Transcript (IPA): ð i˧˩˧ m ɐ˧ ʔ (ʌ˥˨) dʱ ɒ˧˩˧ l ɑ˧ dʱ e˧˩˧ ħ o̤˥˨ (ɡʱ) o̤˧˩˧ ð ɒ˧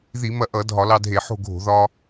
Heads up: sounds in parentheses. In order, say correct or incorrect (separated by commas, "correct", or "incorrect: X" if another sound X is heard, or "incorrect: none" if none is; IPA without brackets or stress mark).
incorrect: ʌ˧˩˧, correct